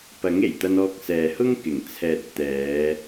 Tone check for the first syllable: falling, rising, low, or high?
rising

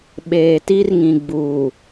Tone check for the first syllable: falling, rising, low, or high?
low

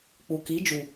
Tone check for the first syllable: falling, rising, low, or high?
low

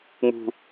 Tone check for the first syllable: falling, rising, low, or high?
high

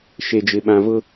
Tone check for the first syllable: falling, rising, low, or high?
low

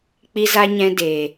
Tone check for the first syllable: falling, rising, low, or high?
high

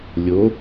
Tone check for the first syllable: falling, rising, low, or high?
rising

